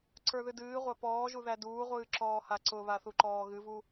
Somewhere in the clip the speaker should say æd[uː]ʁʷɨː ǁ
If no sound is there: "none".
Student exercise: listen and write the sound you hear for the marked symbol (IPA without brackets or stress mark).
uː